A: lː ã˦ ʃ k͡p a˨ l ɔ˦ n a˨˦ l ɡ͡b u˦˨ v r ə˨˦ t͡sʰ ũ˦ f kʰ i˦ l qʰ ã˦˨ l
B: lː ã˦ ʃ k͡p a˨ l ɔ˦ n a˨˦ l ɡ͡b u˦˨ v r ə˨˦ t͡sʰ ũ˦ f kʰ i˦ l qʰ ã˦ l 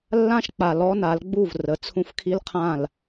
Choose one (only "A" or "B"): A